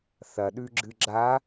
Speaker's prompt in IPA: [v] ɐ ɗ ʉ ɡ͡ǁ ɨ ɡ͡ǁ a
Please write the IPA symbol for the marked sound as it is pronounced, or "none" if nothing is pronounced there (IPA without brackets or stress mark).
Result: θ